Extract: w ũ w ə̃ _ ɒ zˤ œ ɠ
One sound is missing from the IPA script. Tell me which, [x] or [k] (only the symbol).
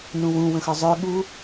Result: x